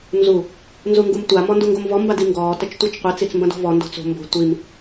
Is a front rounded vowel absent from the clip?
yes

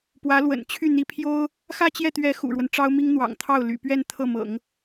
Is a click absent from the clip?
yes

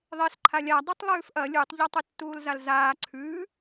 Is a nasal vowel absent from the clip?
yes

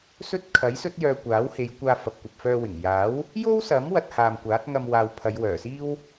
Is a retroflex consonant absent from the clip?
yes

